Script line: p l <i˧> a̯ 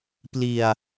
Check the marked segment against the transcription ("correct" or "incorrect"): correct